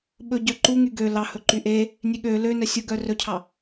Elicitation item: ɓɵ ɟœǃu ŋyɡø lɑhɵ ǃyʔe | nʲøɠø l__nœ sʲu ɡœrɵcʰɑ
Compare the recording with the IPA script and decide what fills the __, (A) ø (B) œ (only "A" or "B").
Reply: A